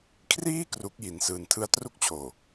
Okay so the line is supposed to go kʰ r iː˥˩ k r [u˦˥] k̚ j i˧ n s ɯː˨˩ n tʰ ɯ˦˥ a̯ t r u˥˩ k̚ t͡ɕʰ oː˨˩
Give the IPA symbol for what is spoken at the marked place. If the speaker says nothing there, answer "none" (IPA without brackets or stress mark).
u˦˥